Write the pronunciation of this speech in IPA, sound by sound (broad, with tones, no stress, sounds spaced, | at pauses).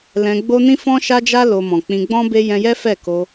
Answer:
l ɛ̃˧ ɡ͡b o˦ n ĩ˦ f ɔ̃˦ ʃ a˦ d͡ʒ a˦ l o˧ m ɔ̃˨ k͡p ĩ˧ ɡ͡b ɔ̃˦ b e˦ j ɛ̃˧ j ɛ˦ f ɛ˦˨ k o˧